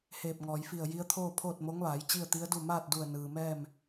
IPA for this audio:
h eː˧˩ p̚ ŋ ɔː˩ j f i˧˩ ə̯ j i˧˥ ə̯ t̪ʰ oː˥˨ pʰ oː˥˨ t̚ m o˧˥ ŋ ʋ aː˩˧ j t͡ɕ i˥˨ ə̯ t̪ i˧˥ ə̯ d u˥˨ m aː˥˨ t̚ d u˧˩ ə̯ n ɯː˩ m ɛː˥˨ m

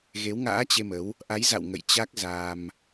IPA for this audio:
ɣ e˨˦ w ŋ a̰ː˧˥ t͡ɕ e˧ m ə˨˦ w | ʔ a˨˦ j z a̰˧˨ w ŋ ə̰˧˨ j t͡ɕ a˦˥ k̚ z a˧ m

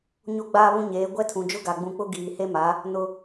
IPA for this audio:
ɲ o˦ ɡ͡b aː˦ β ũ˦ ɲ eː˨˦ ɡʷ ɛ˦ tʰ ũ˨ d͡ʒ ʊ˦ ɡ a˨ ɡ͡b ũ˨ k͡p ʊ˦ ɡ iː˨ h e˦ m a˨˦ | n ʊ˦

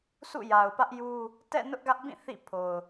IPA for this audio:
s ṵ˦˨ j a˨ ʊ̯ p ä˦ ʔ j u˦ | t ɛ̰˦˨ n ʊ˦ ʔ ɡ ä˦ ʔ b ĩ˦˨ θ ḭ˦˨ pʰ o˨ ʊ̯

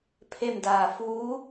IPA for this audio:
pʰ e˥˨ m d aː˧˩ f uː˧˥

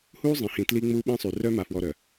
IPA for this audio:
h uː˦ zˤ ĩ˨ h ĩ˨ t l i˦ ŋ͡m uː˦ ɓ ẽ˦ sˤ y˨ r œ˦ m a˨ f w ɔ˨ ɾ œ˨

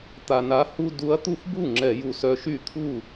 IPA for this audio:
t̪ a˨˩ n a˨˦ h u˦ d u˨˦ ɐ̯ t̪ u˥˩ f b u˥˩ ŋ͡ǁ ɛ˧˩˧ j u˨˩ s œ˨˦ ʃ y˥˩ t̪ʰ u˥˩

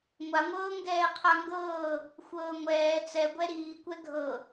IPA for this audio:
ŋʷ a ŋʷ ɤː ŋ ɡ ɛː qʰ a ŋ ɡ ɤː | xʷ ɤː ŋʷ ɛː t͡s ɛ ɡʷ ɛ ɾ iː kʷ ɛ ɡʱ ɤ

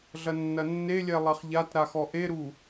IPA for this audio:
ɮ ɐ nː ɐ nː e lʲ ɛ lˠ ɛ χ ʎ a t ɾ a x ɔ ʔ e ɾ u

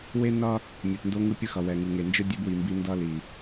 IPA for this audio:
w e˦ n ʌ˦ | mʲ e˨ t n d o˦ ŋ ɯ˦ pʲ ɯ˦ x ʌ˨ w ɛ˨ ŋ ɯ˨ ŋ e˨ n d͡ʒ ɯ˦ dʲ e˦ b w i˨ m b i˦ n d ʌ˦ l i˨

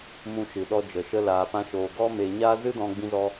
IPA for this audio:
m ũ˧ ʃ ɨ˨ ɗ ɔ˧ d͡ʒ ə˨ ʃ ə˧ l aː˨ p ã˧ ʃ oː˨ ɡ ɔ˦ m e˧ ɲ a˦ z ɨ˦ d ɔ̃˧ ɡ͡b ĩ˧ z ɔ˧

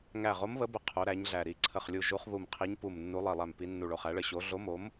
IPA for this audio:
ŋ æ˧˩ ʁ o˨˦ m β ə˨˦ b ə˧˩ qʰ o˨˦ ɾ æ˨˦ ɲ ɮ æ˧˩ ɾ i˧˩ ǀʰ ə˧˩ χ lʲ u˧˩ ʒ u˨˦ χ β u˧˩ m qʰ i˨˦ ɲ p u˧˩ m nː u˨˦ lˠ i˧˩ lˠ æ˧˩ m p i˨˦ nː u˧˩ ɭ o˧˩ χ æ˨˦ ɭ ə˧˩ ɕ o˨˦ ɮ o˨˦ m o˨˦ m

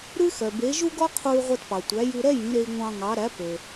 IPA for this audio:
ɾ ʉ˥ x œ˩ b e˩˥ ʒ u˥ ɡ ɔ˥ qʰ u˧ y̯ ʁʷ ɛ˧ t p ɑ˩ tʷ æ˩˥ j ʉ˧ ɾ ɛ˥ j ĩ˩˥ ɾ e˧ i̯ ŋʷ ɑ̃˧ ŋ ɑ˩˥ ɾ æ˩˥ p ø˩

